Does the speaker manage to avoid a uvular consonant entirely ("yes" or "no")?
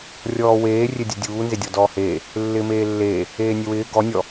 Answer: yes